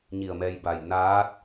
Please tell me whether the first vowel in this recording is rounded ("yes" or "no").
no